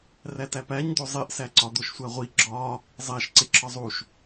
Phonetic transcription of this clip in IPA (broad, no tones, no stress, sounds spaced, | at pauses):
r æ t æ p æ ɲ d̪ o zˤ e ʔ s æ ǀ ɒ d̪ o ʃ sʷ æ ʁʷ i ɡ͡ǁ ɒ | zˤ æ ʃ ǀ e ǁʰ ɒ zˤ u ʃ